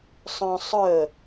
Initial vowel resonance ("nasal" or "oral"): nasal